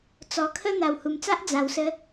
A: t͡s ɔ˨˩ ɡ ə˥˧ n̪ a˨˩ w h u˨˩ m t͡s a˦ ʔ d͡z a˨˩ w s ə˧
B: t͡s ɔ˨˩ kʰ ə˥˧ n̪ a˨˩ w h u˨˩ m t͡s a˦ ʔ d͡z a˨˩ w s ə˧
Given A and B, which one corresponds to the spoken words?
B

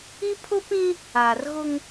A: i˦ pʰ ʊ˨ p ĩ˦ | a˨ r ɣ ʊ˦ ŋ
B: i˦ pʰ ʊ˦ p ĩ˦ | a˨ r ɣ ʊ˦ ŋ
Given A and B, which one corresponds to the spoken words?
B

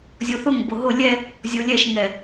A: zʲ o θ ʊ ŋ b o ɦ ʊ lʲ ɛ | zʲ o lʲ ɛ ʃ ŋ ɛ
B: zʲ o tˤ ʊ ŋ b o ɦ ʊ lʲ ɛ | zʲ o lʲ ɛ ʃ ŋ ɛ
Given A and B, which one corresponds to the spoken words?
A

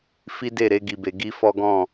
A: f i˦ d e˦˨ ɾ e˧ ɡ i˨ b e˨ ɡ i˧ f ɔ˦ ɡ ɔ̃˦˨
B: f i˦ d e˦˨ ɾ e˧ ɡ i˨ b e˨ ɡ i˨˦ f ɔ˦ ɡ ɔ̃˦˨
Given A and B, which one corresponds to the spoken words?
A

